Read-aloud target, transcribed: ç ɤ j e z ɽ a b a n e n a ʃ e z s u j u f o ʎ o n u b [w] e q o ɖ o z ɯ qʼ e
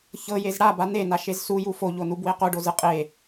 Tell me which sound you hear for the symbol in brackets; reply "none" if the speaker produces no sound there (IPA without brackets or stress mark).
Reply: w